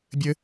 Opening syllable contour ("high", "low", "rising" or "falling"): high